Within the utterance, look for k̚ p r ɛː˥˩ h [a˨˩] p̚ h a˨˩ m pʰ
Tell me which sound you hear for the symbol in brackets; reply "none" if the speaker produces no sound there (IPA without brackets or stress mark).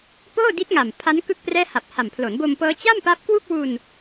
a˨˩